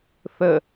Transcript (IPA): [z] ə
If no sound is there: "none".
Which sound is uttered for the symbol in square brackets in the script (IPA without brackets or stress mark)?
θ